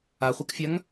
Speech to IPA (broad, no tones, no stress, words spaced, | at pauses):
aχʷakfʲaŋ